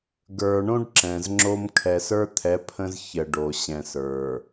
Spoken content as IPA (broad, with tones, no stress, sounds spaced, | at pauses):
ɡ ə˞˨ ɳ õ˦ ɖ ǁ ɛ̃˨ z ŋ͡ǁ o˦ m kʰ ɛ˨ s ə˞˦ t̪ʰ ɛ˨˦ pʰ ə̃˦ z ç ə˨ ɖ o˨ ɕ ɛ̃˨ s ə˞˨